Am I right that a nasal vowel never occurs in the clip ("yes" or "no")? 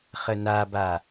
yes